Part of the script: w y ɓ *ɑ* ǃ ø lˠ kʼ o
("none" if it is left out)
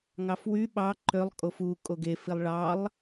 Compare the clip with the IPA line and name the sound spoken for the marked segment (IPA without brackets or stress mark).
ɑ